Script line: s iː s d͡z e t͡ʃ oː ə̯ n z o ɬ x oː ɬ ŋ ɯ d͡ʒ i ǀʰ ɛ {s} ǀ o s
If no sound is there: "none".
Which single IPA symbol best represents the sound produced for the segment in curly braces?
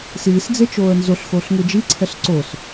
ɬ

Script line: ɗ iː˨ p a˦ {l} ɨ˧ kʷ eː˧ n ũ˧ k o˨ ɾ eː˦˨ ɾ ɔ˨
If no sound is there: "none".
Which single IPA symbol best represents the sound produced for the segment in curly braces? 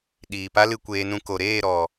l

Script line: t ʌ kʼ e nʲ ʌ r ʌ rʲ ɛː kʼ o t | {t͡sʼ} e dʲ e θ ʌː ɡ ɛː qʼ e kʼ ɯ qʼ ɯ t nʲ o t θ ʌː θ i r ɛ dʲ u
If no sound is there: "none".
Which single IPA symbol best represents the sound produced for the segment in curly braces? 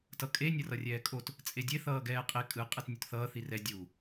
t͡sʼ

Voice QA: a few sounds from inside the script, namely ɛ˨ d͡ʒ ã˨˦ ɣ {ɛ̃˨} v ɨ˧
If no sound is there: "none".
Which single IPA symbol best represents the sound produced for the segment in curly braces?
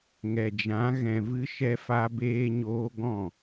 ɛ̃˨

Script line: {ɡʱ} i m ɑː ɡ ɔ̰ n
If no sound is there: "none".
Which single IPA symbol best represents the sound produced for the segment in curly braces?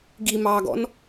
ɡ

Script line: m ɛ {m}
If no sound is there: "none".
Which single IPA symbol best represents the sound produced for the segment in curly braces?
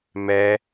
none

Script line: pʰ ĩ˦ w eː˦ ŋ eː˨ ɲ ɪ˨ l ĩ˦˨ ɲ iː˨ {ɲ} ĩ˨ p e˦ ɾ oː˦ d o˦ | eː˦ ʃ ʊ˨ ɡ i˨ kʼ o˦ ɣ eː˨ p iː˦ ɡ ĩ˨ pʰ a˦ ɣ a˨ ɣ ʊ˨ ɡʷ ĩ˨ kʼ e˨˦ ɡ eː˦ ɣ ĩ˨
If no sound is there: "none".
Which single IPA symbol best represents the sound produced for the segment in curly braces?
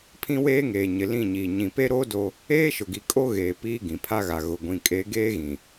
ɲ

